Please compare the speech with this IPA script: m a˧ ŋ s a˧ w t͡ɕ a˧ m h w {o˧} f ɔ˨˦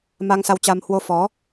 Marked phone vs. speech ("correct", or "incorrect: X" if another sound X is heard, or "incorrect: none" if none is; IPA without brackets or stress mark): correct